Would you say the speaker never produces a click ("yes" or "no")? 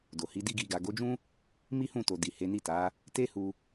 yes